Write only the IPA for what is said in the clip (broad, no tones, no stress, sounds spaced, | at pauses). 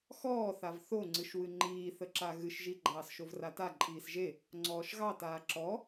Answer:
x ɔː θ a v θ o ŋ͡ǀ ɨ ʃ w ɨ ŋ͡ǃ iː θ ə ǁ a ɣ ɨ ʃ ʒ i ɡ͡ǃ ɑː s ʃ o v r a t a ǃʼ iː s ʒ e | ŋ͡ǀ ɔː ʃ ɣ ɑ t aː ǁ ɔ